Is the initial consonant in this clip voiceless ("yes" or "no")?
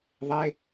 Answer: no